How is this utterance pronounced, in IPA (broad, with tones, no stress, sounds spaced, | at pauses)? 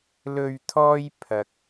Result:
l ɵ˨ ɥ t̪ʰ ɔː˧ j pʰ ɐ˧ k̚